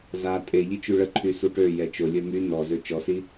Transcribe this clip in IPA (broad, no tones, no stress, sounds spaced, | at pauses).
z a tʼ e ʎ i t͡ʃ y ɭ ə ǃʰ y s u ʈ ø j ɛ t͡ʃ o lʲ œ m y n ɔ z ø t͡ʃ ɔ s i